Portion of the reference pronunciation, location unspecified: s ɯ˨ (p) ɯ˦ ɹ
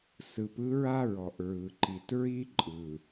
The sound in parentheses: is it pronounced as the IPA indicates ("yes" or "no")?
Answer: yes